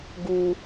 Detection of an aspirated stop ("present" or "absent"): absent